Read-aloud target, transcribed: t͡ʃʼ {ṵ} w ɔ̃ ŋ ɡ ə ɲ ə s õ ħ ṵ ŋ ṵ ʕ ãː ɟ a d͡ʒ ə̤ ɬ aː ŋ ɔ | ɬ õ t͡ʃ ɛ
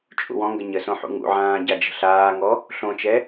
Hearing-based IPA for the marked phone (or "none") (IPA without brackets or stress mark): ṵ